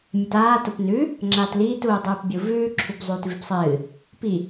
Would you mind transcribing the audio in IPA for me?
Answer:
mʲ ɵ t aː t o p n ʉ | ŋ͡ǁ aː t l iː t uː dˤ ʉː p bʲ u v ʉː ǁʰ ʉ p zˤ ʉː t v i p sˤ ɨː | p i

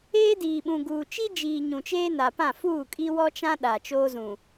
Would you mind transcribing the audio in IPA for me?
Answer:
eː˦ d iː˨ ɓ ũ˨ ɡ uː˨ t͡ʃ i˦ d͡ʒ iː˨ ɲ ũ˨ t͡ʃ eː˦ n a˨ p ã˦˨ f uː˦˨ kʼ i˦ w ɔ˦ t͡ʃ ã˦ ɗ a˨ t͡ʃ oː˦ z ũ˨

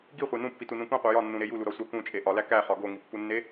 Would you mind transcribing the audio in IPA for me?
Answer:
ɡ i χʷ e n ũ pː i t u n ũ k ũ qʷ e j ɒ nː ũ ɾ e j u l u ɾ ɒ sʷ æ k ũ t͡ʃʼ e ʔ ɒ l æ k æ χ ɒ ɡ o ŋ i pː u nː e

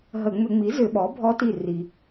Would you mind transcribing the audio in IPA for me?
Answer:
ɦ ə˧˩˧ ŋ͡m ʏ˧˩˧ ŋ͡m i˩˥ z ʏ˧˩˧ ɓ ɔ˩˥ bʱ ɔ˧˥ t i˧˩ r i˩

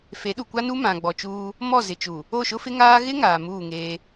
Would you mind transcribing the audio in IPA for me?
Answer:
f e˨˦ ɗ u˨ kʷ a˦ n u˦ m ã˨ ɡ͡b ɔ˨ t͡ʃ uː˦ | m ɔ˦˨ z ɪ˨ t͡ʃ u˨ | o˦˨ ʃ ʊ˦ f ɪ˦ ŋ aː˦ ɣ ɪ˦ ŋ aː˨ m uː˦˨ ŋ eː˦

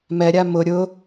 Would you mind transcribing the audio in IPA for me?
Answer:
m ɛ ɾʲ a m ʊ ɾʲ ʊ

